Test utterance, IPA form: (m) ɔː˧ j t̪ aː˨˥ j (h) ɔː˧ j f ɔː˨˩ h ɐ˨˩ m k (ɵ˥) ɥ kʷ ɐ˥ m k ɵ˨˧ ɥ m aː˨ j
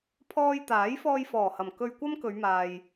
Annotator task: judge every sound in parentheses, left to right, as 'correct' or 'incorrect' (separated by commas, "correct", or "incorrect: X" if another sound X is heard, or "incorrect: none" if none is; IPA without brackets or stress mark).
incorrect: pʰ, incorrect: f, incorrect: ɵ˧